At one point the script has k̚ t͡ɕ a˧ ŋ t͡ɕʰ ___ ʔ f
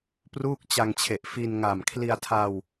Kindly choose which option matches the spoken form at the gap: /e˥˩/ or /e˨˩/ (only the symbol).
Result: e˨˩